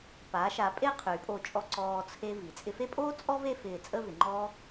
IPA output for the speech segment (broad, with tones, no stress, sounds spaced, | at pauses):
p a˩˧ ʃ a˩˧ pʼ e˥˧ qʰ y˩˧ pʼ o˧˩ t͡ʃʼ ɔ˧ ǀ ɔː˧ t͡sʰ e˧ v i˩˧ t͡sʼ ɪ˧ f e˥ pʼ oː˥ t͡sʼ ɔ˥ v e˥˧ f ɪː˧˩ t͡sʼ ə˥˧ v ɪ˩˧ ŋ͡ǃ ɔː˥